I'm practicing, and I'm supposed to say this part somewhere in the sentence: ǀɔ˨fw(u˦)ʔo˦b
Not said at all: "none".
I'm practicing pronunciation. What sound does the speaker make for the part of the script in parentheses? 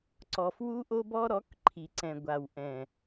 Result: u˦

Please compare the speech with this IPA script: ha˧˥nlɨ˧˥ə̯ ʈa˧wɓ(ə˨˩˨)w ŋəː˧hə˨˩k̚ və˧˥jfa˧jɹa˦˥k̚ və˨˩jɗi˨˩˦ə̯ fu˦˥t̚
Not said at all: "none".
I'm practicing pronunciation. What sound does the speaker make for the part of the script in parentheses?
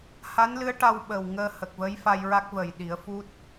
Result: ə˨˩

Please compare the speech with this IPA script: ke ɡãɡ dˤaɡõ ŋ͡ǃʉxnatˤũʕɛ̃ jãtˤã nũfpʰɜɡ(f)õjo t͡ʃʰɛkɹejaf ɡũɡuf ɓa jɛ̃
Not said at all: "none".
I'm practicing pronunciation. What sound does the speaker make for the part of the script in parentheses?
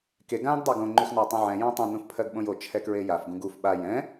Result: ɓ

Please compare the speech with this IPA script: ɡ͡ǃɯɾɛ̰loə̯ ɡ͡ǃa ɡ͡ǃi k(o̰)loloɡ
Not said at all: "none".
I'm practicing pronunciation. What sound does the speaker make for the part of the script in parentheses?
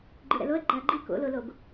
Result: o̰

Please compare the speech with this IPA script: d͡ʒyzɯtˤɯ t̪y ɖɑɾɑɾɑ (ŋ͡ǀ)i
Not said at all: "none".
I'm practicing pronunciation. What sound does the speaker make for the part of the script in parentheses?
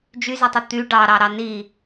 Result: n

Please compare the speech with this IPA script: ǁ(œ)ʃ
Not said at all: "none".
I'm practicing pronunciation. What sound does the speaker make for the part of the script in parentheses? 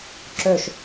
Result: œ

